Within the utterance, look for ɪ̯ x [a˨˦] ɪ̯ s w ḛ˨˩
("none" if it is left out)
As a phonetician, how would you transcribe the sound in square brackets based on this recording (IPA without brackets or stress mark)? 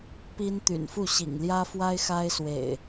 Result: a˦